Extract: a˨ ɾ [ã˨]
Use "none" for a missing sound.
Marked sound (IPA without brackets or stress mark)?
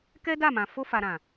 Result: ã˨